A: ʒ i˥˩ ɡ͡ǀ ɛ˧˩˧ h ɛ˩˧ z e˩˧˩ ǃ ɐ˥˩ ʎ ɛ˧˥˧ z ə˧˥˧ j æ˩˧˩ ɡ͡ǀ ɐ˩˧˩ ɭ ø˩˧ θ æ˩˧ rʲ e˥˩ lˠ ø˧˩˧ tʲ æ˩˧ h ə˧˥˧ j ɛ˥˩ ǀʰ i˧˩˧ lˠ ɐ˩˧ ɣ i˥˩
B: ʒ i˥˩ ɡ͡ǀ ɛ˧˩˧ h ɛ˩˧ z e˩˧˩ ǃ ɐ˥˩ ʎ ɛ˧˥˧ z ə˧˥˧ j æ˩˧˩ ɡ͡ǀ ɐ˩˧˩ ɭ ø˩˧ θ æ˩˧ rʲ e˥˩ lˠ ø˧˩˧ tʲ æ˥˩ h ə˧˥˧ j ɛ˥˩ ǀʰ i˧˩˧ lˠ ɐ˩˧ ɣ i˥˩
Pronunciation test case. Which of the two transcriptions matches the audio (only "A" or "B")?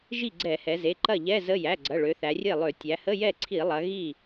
A